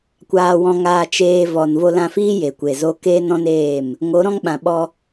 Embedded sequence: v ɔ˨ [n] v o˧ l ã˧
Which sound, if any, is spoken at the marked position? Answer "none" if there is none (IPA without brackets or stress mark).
n